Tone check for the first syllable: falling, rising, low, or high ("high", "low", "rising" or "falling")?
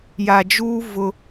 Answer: low